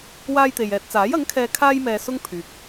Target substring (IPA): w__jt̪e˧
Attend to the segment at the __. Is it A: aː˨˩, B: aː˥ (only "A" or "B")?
B